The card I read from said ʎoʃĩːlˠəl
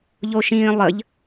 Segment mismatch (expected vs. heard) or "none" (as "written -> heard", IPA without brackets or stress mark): l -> ʎ